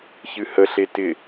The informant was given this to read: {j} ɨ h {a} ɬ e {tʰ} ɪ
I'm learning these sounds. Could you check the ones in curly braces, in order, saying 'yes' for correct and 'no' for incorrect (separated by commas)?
no, no, no